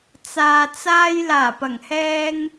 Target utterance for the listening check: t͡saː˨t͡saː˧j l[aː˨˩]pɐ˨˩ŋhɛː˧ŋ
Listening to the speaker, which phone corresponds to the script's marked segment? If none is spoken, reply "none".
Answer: aː˨˩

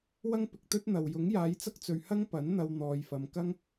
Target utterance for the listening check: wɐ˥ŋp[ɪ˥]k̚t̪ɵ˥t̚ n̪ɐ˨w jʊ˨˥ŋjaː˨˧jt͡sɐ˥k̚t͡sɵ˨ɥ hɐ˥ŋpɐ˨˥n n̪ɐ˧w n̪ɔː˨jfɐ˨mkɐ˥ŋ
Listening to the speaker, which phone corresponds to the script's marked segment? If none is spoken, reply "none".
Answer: ɪ˨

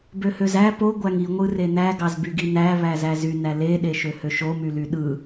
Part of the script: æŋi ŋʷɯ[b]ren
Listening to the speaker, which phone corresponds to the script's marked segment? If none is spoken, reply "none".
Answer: none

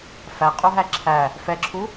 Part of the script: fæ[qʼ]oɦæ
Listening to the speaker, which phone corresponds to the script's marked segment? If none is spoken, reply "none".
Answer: qʼ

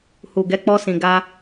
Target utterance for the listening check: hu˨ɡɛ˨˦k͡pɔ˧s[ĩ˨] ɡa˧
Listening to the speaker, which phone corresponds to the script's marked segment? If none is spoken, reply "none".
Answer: ĩ˨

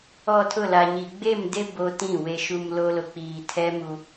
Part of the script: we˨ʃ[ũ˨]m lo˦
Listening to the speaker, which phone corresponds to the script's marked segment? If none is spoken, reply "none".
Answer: u˨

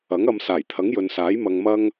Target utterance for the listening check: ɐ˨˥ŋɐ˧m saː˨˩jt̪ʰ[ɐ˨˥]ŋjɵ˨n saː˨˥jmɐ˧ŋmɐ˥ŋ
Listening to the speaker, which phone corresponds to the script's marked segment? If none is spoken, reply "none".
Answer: ɐ˨˥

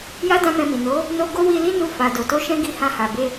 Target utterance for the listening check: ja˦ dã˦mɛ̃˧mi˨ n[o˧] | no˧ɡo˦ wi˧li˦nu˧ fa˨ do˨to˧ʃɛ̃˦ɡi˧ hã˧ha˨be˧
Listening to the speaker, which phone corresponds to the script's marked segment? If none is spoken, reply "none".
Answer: o˨˦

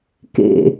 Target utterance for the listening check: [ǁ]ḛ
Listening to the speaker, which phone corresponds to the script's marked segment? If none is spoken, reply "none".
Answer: k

